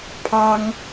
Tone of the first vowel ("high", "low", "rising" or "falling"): high